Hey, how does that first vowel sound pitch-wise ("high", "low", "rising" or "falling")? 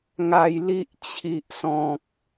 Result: high